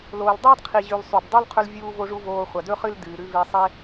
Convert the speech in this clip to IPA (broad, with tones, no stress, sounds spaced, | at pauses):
l oː˩ l dˤ ɐː˥ d qʰ i˩ ʑ ʉ˩ l sˤ ʉ˩ b dˤ o˥ l qʰ ɵ˧ l vʲ uː˧ v o˧ ʐ u˧ v oː˧ χʷ ɐ˩ d ɵ˥ χ ɨ˥ l d ɨː˩ ɾ ʉ˧ v e˧ sˤ e˥